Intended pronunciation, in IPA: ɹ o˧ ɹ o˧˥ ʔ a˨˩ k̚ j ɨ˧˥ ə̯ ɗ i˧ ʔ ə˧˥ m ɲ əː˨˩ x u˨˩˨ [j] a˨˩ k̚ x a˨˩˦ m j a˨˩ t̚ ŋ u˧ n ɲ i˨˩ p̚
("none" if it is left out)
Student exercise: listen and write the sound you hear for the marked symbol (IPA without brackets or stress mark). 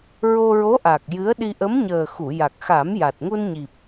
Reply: j